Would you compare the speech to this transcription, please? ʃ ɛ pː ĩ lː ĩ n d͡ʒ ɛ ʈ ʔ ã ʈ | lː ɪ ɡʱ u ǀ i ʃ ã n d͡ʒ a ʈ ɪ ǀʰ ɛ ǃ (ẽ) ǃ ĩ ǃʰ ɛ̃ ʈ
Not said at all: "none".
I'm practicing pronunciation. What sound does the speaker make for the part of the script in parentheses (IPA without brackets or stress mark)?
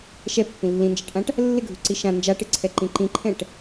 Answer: ĩ